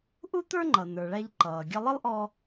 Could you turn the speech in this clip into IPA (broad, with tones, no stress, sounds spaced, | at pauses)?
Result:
ʔ u˥ t̪ ə˞˥ ŋ͡ǃ ʌ˩ n ə˞˩ ɭ æ˧ ʎ ǃ ʌː˩ ɡʲ ʌ˧ lˠ ə˥ lˠ ʔ ɔ˧